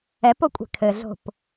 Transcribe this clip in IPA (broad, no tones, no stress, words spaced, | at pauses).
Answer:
ɛpokʷʼɛ̤ kʰɘɮo̤p